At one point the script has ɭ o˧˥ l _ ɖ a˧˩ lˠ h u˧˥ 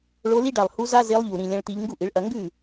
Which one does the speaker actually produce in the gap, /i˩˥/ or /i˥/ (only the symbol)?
i˥